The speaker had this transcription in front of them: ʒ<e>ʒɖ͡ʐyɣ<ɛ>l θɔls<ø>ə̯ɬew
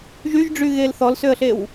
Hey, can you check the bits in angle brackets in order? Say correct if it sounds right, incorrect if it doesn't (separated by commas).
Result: incorrect, incorrect, correct